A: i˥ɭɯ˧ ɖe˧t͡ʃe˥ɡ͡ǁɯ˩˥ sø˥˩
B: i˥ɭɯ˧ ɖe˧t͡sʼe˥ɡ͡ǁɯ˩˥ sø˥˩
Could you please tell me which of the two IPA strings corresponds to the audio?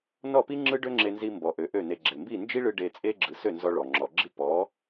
B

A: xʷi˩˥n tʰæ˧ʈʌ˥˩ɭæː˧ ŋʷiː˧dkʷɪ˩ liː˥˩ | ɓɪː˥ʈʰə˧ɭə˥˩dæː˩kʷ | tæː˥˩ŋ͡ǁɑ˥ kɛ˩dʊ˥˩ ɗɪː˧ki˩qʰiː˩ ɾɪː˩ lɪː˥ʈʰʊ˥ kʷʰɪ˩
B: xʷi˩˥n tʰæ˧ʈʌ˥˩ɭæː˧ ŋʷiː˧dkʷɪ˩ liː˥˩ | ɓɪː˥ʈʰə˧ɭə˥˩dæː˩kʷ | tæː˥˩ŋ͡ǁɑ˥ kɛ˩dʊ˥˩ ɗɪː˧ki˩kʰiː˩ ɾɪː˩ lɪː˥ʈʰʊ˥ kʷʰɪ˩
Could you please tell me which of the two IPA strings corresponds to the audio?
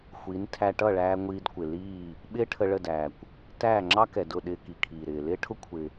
B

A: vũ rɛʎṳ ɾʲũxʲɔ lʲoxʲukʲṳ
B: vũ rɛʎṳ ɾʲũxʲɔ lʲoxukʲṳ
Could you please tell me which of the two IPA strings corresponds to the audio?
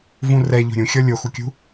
B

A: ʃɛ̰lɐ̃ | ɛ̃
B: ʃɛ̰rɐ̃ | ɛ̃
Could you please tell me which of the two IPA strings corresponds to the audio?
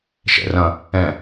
B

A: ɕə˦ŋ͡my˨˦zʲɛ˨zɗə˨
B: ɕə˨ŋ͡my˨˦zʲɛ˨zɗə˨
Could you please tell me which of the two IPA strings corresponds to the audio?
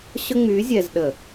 A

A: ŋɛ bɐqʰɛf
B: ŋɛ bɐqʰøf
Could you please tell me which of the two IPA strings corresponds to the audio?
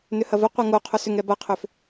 B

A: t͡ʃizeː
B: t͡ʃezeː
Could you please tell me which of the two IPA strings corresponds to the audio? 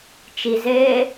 A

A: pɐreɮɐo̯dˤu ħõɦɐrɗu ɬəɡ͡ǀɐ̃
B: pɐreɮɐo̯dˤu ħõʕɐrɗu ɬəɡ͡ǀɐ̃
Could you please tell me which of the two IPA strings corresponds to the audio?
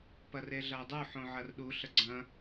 B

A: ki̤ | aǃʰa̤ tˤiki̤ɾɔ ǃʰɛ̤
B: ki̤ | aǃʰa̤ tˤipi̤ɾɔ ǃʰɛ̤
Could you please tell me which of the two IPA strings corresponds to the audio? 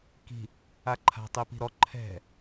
B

